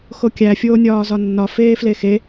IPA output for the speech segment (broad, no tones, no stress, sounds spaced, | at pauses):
x o kʲ æ fʲ oː nʲ ɒː z ɒ nː ɒ f eː f l e x e